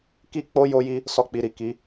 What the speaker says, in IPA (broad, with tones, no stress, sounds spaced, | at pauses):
k i˦ k͡p o˦ j o˧ j i˧ | s ɔ˧ k͡p i˨ ɾ i˨ k i˨˦